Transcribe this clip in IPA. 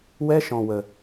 w ɛ˦ ʃ ɔ̃˧ w ə˧

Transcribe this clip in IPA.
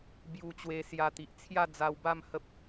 b j u˧ t͡ɕ w e˧ s j a˧ t̪ i˨ ʔ t͡sʰ j a˥˧ d͡z a˧ w b a˥˧ m h ə˦ p̚

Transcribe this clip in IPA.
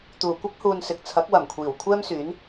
t̪ uː˨˩ kʷ ɐ˥ k̚ h uː˨ n s ɪ˨ k̚ t͡sʰ ɐ˨˥ k̚ w ɐ˨˩ m kʷʰ iː˨˩ w kʷʰ ɛː˥ m s yː˨˥ n

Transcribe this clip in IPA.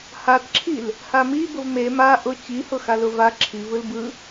h a t ǁʰ i l | h a m i b ʊ v m e m a ʔ ʊ t͡ɕ i h ʊ x a l ʊ v a ǁʰ i v ɯ l b ɯ

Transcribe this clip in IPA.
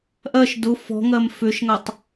ʔ ɜ ʃ d ʊ f ɔ̤ ŋ ɜ m f ʏ ʃ ŋ a tˤ

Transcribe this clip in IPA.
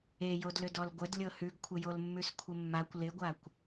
e j o d l ʏ d ɔ l ɡʷ ə d lʲ ɤ h ʉ ɡ kʷʰ ɪ j o l mː ʉ s kʷʰ ɪ mː a kʷ l ɪ ɡʷ a kʷ

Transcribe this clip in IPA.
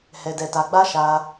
h ɛ˧ d ɛ˧ t a˧ ɡ͡b a˦ ʃ a˧

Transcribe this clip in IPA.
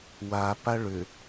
w a p a ɭ ʏ

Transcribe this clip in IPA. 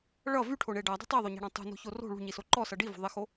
ɭ ʌ v y ʈʰ o ɳ e ɖ a dˤ e̤ tˤ i ðˤ o ɲ a̤ ɽ ɔ̃ tˤ ṳ n o̤ ç o r o̤ ɭ ṳ ɲ i s o ǃ ɔ s ʌ ɖ i v o̤ ðˤ e x o

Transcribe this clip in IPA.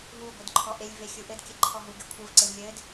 ɦ u ɡʷ ɯ d ǃʰ ɔ ʔ e lʲ v e xʲ u ʔ ɘ d kʲ ɘ ǃʰ ɔ ɦ u ɡ e kʷʰ ɯ v ǀ e v lʲ ɘ d

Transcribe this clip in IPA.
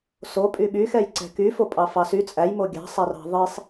s o pʼ y ɓ y x ɛ j ǀ ɛ̤ k y f o pʼ ɑ f ɑ s y t͡sʼ æ j m o ɡʲ ɑ̤ sˤ æ r ɑ̤ ðˤ i sˤ

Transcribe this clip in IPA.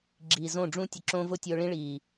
ɡ͡ǁ iː˨ z õ˦˨ ɖ͡ʐ ũ˦ tʲ ʊ˧ ǁ õː˦ v ʊ˦ tʲ ʊː˧ ɭ ĩ˦ ɭ iː˨

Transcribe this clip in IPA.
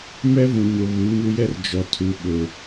m ɛ˦ v ũ˨ ɲ o˨ β u˨˦ ɲ u˦ j ɛ˦ r d͡ʒ ɔ˨ tʰ u˨ ɓ ʊ˨

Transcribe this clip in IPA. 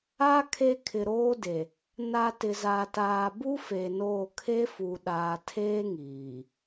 a˦ kʰ e˦ kʰ ɪ˨ ɾ oː˦ d e˨ | n a˨ t ɪ˨ z a˨ t aː˨ b u˦ f e˨ n oː˦˨ kʰ e˦ f u˨ ɗ aː˨ tʰ eː˦ ŋ iː˨

